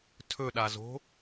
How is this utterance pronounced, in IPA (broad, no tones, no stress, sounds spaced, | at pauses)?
tʰ ɵ ɗ a z o̤